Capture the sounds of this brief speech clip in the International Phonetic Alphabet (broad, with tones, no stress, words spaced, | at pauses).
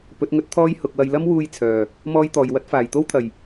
pɵ˨˥t̚ŋɵ˥t̚t̪ʰɔː˥j hʊ˨k̚ wɐ˨jlɐ˥mwuː˧j t͡sʰœː˨˩ | mɔː˥jt̪ɔː˨jwɐ˥t̚ faː˨˩jt̪o˥wt̪ʰɐ˨˩j